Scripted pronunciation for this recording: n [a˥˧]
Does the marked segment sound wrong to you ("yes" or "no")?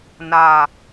no